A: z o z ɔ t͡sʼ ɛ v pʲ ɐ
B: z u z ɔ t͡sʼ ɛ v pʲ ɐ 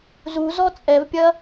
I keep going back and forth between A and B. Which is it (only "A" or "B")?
B